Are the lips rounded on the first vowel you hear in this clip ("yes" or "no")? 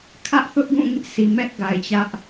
no